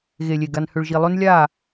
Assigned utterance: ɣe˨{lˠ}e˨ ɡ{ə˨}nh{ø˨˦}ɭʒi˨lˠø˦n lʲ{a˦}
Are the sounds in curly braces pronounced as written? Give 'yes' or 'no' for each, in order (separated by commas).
no, no, no, no